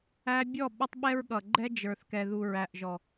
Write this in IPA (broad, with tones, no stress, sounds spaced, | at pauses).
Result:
æ˧ bʲ ɔ˦˨ ɓ ə˦ tˤ ɓ ɛ˦ ɹ ɠ ʌ˨ ɡ͡ǃ ɛ˦ d͡ʒ ə˞˨ θ k ɛ˨ ð u˨ ɹ æ˨ ʔ ʒ ɔ˨